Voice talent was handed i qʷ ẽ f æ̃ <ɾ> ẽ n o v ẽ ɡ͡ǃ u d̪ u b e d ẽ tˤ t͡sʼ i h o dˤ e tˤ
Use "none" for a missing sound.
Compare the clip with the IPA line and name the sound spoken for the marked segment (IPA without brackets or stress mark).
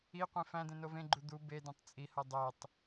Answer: d̪